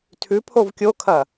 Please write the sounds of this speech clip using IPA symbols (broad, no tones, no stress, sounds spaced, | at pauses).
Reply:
tʰ ʉ pʰ o v kʲ o kʰ ɐ